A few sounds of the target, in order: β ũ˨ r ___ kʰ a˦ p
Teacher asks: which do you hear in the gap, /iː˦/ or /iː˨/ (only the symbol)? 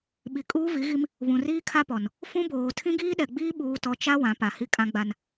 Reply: iː˦